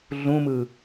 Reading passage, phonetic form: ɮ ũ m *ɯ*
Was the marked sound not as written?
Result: no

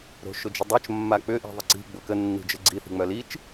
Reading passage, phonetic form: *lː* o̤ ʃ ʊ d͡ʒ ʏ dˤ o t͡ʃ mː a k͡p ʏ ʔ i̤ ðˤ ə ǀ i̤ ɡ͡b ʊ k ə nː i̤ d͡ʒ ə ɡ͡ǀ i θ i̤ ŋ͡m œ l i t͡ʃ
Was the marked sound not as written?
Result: yes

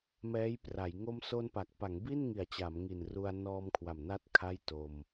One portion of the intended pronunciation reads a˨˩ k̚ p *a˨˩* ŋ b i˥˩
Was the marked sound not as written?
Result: yes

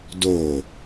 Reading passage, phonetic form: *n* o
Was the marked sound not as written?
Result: yes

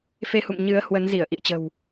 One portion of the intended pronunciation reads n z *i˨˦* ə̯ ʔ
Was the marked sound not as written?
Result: yes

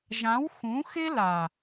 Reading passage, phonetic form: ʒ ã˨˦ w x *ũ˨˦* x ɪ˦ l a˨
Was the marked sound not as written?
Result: no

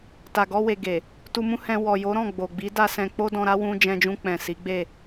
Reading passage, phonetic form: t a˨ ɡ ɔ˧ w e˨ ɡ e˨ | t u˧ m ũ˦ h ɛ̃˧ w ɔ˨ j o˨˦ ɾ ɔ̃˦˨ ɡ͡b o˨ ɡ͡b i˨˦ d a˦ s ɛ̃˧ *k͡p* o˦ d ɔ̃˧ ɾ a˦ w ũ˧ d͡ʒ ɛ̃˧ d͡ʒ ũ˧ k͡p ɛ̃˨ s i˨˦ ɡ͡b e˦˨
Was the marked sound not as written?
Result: no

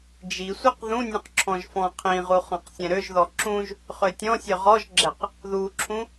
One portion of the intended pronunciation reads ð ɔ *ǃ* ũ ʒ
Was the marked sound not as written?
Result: yes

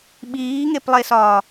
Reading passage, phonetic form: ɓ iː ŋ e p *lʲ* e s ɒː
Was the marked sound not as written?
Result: yes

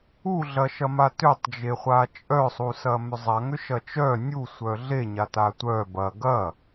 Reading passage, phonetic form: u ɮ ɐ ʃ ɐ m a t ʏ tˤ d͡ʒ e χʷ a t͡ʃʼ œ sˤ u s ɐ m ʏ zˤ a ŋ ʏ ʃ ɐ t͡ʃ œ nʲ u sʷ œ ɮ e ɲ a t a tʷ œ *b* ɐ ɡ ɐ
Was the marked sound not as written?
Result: no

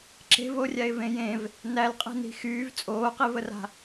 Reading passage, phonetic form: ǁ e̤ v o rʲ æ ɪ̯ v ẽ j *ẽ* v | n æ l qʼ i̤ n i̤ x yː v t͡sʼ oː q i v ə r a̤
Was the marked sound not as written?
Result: no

